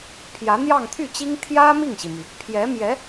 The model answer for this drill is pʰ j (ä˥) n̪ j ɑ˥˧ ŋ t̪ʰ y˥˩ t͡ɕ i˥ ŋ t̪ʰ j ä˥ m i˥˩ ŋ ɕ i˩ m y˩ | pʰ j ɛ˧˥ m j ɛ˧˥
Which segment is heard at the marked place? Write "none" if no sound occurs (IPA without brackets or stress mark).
ä˧˥